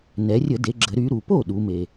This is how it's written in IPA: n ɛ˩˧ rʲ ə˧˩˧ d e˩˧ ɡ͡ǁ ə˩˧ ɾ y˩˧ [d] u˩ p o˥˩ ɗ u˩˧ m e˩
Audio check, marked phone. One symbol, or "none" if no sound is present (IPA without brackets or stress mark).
ɾ